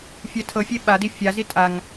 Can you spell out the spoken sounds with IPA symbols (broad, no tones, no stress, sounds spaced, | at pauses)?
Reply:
fʲ ɛ tʰ ɤ fʲ e ɓ a d i fʲ a z i tʼ a ŋ